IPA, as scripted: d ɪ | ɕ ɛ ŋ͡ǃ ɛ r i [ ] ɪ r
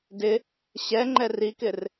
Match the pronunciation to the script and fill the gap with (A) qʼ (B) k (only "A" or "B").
B